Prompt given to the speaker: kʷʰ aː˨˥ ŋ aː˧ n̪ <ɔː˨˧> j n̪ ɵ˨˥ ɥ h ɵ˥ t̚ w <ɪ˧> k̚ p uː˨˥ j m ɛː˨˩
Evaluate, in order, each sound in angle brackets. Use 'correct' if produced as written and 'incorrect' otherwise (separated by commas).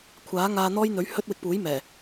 incorrect, correct